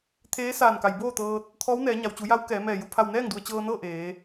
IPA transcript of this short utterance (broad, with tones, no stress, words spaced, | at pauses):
t̪ʰeː˧˥saː˧˩nka˩j boː˥˨t̪ɤː˧t̚ | t̪ʰɔː˧˥wnɛː˩˧ ɲa˩wt͡ɕu˩˧ja˧˥w kɛː˩˧mɛː˧˩ju˩ pʰa˧˩wnɛː˥˨ŋdu˩ə̯ t͡ɕɤː˧nɤː˥˨ ʔeː˩˧